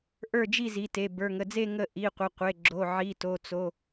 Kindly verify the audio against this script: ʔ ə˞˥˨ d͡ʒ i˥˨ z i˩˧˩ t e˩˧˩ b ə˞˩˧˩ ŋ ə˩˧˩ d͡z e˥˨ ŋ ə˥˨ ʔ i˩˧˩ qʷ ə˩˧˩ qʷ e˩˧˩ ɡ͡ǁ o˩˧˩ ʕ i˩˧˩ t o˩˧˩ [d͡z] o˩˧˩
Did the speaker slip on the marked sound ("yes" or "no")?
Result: yes